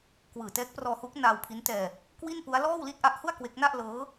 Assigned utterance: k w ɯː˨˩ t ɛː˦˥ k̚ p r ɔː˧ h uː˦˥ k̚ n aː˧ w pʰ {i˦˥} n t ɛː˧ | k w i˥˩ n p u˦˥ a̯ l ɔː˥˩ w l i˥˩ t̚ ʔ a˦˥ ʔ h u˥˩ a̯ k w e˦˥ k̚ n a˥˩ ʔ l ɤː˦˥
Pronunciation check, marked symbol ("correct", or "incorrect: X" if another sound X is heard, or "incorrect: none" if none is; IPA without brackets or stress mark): correct